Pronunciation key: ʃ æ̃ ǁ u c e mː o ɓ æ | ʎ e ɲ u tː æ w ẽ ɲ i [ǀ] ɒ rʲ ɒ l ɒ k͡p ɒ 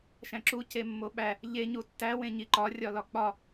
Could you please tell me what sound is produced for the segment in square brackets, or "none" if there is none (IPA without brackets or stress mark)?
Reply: ǃ